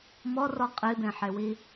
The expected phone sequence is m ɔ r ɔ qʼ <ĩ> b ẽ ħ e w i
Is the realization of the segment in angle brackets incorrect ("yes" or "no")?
yes